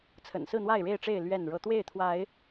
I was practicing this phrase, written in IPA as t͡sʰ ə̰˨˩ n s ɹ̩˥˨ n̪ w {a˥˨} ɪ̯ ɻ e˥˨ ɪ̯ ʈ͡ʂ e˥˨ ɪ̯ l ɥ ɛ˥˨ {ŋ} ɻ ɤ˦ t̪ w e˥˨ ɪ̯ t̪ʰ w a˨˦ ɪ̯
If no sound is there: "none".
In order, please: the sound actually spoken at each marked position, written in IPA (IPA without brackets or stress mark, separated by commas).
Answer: a˥˨, n